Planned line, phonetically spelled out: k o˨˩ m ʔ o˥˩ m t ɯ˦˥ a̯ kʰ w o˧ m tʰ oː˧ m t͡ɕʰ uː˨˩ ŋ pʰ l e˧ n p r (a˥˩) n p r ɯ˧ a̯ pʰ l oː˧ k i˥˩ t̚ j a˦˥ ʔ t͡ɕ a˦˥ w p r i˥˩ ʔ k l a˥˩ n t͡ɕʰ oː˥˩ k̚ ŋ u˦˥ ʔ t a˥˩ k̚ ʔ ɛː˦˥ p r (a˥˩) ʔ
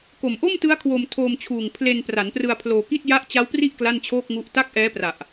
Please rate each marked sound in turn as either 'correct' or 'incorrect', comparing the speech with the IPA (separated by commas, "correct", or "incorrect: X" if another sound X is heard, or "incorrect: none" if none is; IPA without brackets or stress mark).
incorrect: a˩˦, incorrect: a˨˩